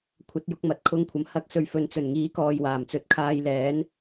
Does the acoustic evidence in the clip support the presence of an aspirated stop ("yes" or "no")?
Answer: yes